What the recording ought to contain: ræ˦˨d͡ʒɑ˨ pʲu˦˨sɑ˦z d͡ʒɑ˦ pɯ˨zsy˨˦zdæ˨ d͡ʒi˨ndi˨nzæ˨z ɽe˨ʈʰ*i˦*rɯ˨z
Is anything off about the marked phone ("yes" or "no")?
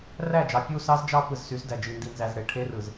yes